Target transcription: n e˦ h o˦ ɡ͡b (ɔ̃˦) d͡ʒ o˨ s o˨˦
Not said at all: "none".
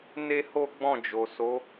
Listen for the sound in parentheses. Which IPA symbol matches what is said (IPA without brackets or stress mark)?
ɔ̃˦˨